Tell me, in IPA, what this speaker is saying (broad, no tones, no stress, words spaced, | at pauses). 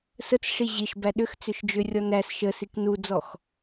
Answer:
sət͡sʂi ʑiʃbæ ɗʏx t͡sʏʃd͡ʒʏrʲɔ næs ʃəsik nud͡zɔx